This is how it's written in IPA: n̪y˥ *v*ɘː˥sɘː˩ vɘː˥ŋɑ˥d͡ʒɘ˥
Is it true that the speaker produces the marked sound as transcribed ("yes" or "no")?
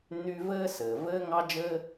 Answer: yes